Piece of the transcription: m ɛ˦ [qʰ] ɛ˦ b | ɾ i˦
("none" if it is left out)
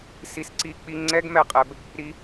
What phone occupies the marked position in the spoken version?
qʼ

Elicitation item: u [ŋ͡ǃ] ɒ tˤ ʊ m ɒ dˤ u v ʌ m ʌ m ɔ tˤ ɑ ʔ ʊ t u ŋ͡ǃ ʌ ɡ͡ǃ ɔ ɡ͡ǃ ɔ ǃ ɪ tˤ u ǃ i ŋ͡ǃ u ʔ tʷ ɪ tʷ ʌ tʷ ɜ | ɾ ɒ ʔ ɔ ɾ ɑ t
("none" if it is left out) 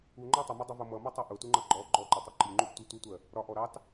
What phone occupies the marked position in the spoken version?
ŋ͡ǃ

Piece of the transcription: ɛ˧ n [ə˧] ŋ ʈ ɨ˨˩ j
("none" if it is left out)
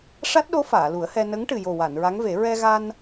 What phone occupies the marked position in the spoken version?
ə˧˥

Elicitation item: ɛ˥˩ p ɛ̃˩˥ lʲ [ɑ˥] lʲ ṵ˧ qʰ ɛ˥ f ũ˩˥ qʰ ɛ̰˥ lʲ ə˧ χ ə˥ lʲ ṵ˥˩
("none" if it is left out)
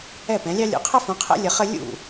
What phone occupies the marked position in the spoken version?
ɑ˥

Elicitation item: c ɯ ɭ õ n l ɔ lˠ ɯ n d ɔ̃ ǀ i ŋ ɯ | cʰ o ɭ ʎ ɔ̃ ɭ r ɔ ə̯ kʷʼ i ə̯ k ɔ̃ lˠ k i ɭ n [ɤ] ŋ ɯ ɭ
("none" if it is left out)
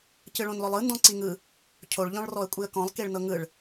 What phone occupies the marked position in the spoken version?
ɤ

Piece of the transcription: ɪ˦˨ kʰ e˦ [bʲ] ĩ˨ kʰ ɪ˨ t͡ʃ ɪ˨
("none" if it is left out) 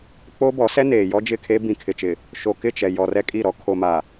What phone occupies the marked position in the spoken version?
b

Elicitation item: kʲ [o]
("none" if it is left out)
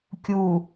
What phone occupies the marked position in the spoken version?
u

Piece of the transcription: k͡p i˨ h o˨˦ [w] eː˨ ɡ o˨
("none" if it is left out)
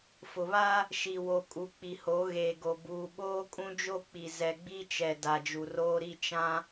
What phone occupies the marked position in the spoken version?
ɣ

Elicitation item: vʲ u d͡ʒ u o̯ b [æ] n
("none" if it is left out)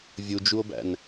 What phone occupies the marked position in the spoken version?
æ̰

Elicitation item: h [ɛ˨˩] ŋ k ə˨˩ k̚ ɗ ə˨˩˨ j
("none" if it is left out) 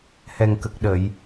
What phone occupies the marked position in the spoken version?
ɛ˨˩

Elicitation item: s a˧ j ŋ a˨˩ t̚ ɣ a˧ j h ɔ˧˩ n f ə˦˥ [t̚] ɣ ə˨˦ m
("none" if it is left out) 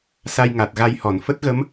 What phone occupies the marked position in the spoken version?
t̚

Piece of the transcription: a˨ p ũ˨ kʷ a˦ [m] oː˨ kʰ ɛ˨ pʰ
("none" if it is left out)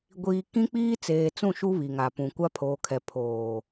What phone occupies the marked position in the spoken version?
pʰ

